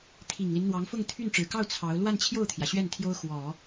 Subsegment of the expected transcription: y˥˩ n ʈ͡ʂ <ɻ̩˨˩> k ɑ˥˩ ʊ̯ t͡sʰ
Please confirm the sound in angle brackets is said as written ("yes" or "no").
yes